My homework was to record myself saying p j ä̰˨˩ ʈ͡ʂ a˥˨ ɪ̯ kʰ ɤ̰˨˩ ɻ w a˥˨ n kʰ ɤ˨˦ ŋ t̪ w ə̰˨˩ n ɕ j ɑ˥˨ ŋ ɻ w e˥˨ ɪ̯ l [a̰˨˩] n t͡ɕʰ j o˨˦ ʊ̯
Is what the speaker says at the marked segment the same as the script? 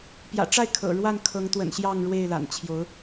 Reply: yes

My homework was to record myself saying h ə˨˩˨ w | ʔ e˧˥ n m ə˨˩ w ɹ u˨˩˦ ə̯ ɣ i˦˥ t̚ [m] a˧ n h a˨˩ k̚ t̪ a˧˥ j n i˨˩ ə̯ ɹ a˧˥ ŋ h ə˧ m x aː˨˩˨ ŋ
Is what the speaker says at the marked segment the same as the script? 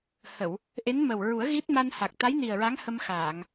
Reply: yes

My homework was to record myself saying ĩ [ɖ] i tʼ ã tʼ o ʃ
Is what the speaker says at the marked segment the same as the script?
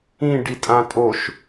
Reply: yes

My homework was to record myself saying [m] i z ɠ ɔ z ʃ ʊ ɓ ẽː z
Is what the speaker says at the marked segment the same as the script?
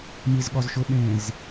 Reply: yes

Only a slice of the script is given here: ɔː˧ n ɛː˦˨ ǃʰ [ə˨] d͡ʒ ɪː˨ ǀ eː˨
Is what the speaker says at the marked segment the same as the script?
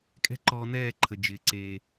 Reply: yes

